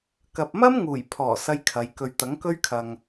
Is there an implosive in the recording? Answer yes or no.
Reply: no